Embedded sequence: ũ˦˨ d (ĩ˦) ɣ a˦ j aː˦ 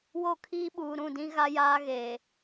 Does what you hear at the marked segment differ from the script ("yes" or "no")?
no